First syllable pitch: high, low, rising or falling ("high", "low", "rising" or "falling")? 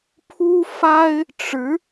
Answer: high